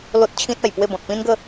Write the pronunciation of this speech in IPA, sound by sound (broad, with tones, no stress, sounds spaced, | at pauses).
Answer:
l o˦ t̚ t͡ɕʰ ĩ˦ t̚ a˨˩ j p w e˥˧ b ɔ̃˨ t̚ p ĩ˦ n ɡ ə˥˧